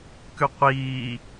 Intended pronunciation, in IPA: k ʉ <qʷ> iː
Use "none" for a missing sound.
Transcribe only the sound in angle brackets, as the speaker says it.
qʷ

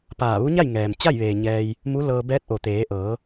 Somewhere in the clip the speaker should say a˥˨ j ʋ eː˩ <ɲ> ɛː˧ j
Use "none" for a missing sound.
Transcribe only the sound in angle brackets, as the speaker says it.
ɲ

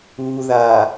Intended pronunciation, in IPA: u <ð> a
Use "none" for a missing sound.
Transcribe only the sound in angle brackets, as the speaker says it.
ð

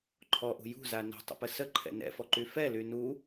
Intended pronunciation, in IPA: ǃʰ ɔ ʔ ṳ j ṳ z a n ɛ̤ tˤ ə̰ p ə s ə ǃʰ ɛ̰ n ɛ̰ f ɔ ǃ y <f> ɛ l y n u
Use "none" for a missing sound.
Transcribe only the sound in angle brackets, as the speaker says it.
f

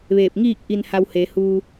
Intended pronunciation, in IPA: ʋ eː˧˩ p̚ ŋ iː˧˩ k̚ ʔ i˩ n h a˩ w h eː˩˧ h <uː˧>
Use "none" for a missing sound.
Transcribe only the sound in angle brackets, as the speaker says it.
uː˧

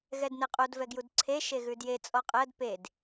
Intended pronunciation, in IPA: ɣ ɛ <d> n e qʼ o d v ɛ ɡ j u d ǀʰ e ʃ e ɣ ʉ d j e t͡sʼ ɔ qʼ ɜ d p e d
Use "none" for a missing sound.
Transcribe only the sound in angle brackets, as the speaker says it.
d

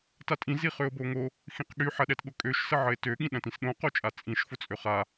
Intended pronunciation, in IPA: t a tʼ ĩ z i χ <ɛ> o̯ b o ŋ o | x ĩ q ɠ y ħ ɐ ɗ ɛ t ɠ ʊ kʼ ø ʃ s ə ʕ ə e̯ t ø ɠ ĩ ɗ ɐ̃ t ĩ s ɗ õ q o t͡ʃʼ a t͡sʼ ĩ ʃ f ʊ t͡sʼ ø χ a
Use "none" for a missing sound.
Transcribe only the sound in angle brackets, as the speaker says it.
ø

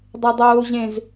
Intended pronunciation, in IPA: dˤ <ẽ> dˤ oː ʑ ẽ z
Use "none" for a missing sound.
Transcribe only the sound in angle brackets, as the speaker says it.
e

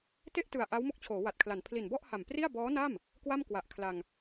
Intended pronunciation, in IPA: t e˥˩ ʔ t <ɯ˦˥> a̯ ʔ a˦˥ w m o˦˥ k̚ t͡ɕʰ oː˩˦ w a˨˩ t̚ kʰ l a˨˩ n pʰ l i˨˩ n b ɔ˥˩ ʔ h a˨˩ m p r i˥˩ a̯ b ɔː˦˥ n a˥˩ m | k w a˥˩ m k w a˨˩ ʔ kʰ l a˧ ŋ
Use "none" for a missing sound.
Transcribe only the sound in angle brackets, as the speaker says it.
ɯ˨˩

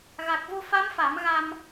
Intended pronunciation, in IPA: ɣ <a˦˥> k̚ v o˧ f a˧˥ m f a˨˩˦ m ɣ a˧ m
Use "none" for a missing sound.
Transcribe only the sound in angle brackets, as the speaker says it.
a˨˩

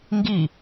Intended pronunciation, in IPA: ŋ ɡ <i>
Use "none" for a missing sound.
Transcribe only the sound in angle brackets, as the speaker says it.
i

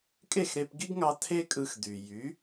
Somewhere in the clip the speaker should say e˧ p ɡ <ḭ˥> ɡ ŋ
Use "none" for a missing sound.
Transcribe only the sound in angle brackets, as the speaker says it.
ḭ˥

